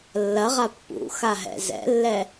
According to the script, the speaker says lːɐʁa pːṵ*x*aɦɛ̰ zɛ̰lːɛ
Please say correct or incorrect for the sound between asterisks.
correct